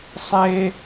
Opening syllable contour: high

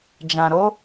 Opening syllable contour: low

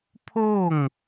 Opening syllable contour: falling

